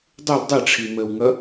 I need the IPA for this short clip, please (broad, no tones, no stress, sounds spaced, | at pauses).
dˤ u l dˤ e ʈ͡ʂʰ i m ə w ŋ ʌ